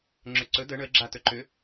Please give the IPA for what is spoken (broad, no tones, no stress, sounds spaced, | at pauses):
ŋ͡ǁ ʏ ǀ ɵ d ə ɳ ə ɡ͡ǁ a t ɵ ǃ ʏ